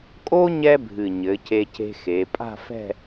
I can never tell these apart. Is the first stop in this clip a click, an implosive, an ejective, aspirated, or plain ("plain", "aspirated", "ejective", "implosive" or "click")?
ejective